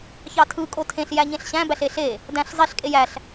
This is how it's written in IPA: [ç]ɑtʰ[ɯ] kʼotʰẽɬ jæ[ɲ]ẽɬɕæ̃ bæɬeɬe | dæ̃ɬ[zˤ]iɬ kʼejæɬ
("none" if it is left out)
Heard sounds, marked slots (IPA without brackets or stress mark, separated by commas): ç, ɯ, ɲ, zˤ